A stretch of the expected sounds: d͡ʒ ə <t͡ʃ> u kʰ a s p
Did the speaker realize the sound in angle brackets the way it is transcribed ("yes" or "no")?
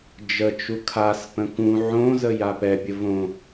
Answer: yes